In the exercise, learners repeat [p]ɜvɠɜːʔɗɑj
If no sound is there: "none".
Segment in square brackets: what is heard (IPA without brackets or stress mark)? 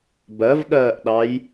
b